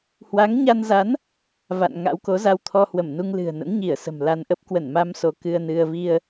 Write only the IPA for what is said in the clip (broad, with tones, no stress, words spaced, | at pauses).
hwa˨˦ŋɲa˧nza˨˦n | va̰˧˨n ŋa̰˧˥wko˨˦ za˧wt̪ʰɔ˧hwə˧˩mnu˧ŋ lɨ̤˨˩ə̯nə̰˧˥nɲi˧˩ə̯ sə̤˨˩mla˧nʔə˦˥p̚ kwə˧˩nmaː˧m so˧kɨ˧ə̯nɨ˧ə̯ vi˧ə̯